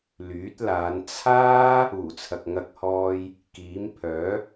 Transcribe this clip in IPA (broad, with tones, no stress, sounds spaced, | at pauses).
l yː˨˥ t̚ l aː˨˧ n t͡sʰ aː˥ | uː˨˩ t͡sʰ ɐ˨ k̚ ŋ ɐ˧ k̚ h ɔː˧ j | k iː˨˥ m pʰ œː˨˥